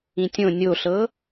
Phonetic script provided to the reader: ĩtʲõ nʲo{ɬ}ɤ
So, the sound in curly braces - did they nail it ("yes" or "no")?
yes